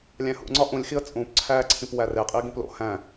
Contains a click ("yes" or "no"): yes